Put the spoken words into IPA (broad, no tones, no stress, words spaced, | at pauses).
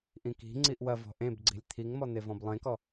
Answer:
ʔĩki̤ŋ͡ǀiʔ wɐvɔ̤ ʔẽbɡ͡ǀi̤lʲ t̪ʰiŋmɔ n̪evɔ̃blˠẽkɔ